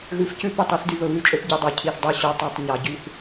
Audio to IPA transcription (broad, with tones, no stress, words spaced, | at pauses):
ɣʉ˨fcʉ˦ pø˦˨tˤo˦θdy˨ βɵ˨βʉ˦˨t͡ʃʼø˦p ɟy˨dˤo˨ cʰi˨θdˤœ˦ ɕœ˨tˤo˨tˤ ɲɑ˨ɟy˦θ